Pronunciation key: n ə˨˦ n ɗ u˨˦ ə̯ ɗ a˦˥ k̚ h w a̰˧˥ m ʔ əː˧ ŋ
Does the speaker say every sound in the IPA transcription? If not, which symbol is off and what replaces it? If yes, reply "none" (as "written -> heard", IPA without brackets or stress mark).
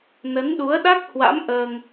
none